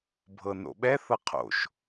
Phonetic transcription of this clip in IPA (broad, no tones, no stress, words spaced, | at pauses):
bʱɤno̰ɓɛ θɤqʰo̰ʃ